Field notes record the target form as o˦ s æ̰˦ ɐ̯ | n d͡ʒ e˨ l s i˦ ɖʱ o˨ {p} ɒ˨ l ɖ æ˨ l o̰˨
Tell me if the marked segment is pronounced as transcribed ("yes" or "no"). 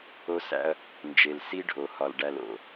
no